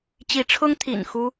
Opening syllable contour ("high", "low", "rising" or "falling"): rising